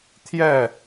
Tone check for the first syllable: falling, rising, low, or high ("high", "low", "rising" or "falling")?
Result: falling